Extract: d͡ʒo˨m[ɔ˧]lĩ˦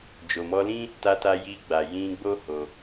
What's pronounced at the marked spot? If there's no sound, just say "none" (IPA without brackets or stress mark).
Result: ɔ˧